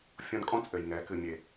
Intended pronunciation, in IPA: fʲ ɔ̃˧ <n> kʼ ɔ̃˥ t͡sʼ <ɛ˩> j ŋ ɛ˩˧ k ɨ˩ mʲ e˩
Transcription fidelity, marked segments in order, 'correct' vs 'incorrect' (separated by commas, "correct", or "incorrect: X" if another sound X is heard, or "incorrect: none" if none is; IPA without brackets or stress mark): correct, incorrect: ɘ˩